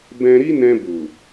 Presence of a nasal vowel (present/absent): present